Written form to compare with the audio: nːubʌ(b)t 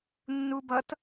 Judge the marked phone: incorrect: none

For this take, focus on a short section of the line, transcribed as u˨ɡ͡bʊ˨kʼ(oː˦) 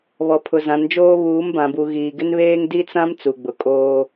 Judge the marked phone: correct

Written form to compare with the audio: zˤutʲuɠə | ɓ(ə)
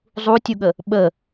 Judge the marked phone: correct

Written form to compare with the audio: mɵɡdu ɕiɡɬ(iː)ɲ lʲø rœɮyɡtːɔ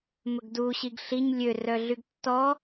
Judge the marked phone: incorrect: i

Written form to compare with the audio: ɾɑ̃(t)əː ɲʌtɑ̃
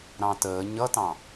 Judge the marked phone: correct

